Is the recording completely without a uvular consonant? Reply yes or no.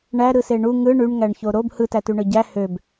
yes